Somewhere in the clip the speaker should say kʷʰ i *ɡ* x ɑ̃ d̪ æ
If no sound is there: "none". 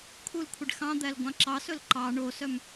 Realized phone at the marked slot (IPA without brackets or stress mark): ɖ